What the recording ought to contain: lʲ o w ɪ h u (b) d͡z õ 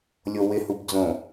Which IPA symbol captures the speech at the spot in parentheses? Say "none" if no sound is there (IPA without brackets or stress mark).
b